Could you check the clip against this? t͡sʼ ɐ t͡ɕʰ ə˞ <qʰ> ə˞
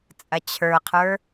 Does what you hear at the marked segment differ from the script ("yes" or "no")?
no